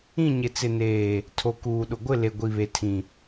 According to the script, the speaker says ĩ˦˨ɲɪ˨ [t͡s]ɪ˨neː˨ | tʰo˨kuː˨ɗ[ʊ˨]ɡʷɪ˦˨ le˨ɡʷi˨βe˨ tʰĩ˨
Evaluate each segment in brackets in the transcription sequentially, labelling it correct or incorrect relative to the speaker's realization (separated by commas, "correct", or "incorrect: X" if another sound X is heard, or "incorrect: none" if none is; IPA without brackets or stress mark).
correct, correct